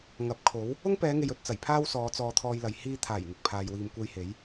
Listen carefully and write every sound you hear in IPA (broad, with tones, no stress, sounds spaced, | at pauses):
ŋ ɐ˨˥ p̚ kʰ o˨˥ w | ʊ˥ ŋ p ɛː˨˧ ŋ e˨ j ɵ˨ t̚ t͡s ɐ˨˩ j pʰ aː˥ w s ɔː˨˧ t͡s ɔː˧ t̪ʰ ɔː˧ j l ɐ˨ j h iː˧ t̪ʰ aː˨˩ j ŋ ɪ˨ k̚ pʰ aː˨ j w iː˨ m kʷ e˧ j h e˨˥ j